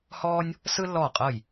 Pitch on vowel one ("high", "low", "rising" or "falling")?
high